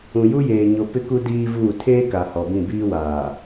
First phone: ũ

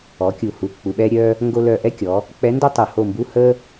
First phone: ɔ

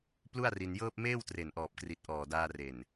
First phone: p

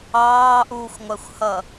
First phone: ɑː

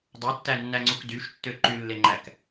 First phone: dˤ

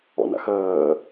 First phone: ɔ̰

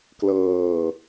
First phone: k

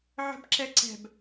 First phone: ʕ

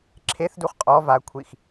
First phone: ǁʰ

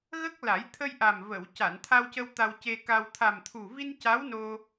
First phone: ɣ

